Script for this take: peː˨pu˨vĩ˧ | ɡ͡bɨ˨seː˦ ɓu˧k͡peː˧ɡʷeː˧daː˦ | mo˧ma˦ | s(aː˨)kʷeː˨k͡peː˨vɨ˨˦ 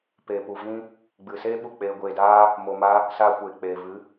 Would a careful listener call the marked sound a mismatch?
yes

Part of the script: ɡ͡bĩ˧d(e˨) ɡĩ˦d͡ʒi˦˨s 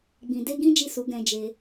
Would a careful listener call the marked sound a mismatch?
yes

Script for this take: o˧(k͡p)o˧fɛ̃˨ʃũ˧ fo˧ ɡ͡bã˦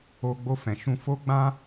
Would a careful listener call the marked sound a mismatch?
yes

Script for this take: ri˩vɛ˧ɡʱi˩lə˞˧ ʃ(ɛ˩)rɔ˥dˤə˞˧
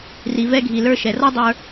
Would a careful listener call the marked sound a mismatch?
no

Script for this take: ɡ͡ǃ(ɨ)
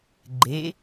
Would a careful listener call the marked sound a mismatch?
yes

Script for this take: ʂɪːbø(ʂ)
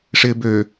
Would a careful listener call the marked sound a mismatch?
yes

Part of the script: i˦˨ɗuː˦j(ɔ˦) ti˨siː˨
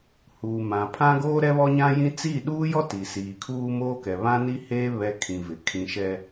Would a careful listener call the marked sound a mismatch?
no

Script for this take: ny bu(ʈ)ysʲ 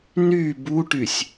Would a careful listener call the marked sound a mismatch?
no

